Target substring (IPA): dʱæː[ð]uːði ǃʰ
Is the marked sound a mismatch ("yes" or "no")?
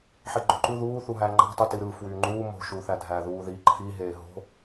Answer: no